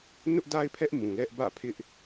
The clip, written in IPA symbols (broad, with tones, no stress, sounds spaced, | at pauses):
n ʊ˦ ʔ d a˦ ɪ̯ pʰ ɛ˦ ʔ m ũ˨ l ɛ˦ ʔ b ä̰˦˨ pʰ ɪ˦ ʔ